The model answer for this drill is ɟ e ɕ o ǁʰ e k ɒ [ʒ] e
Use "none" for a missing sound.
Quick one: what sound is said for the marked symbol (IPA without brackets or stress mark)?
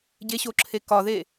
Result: ð